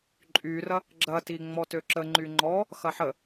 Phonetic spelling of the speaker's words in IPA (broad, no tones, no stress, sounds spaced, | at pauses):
ǃʼ y r ɐ | ɡ͡ǁ ɐ t i ŋ͡m ɔ t ø ǁ ə ŋ͡ǃ y ŋ͡ǃ ɔ | x ɐ ħ ə